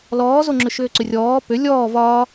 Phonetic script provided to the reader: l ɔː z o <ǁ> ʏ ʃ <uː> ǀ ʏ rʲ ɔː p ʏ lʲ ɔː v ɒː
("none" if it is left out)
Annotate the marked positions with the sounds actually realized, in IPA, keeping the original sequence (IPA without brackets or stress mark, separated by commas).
ŋ͡ǁ, ʏː